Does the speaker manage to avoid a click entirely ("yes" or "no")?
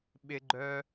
no